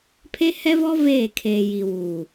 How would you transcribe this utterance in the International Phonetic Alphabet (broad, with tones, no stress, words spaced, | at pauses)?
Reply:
pʰe˦hɛ˦vɔ˦ veː˦˨kʰeː˨ji˨wuː˨